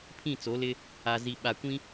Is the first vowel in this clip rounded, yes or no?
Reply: no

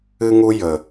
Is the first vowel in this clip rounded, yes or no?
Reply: no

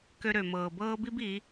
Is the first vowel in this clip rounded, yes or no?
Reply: yes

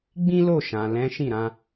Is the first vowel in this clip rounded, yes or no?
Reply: no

